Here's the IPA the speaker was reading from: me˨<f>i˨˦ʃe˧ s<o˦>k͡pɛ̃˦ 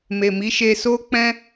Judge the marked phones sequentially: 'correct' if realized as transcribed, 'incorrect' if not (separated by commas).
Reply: incorrect, correct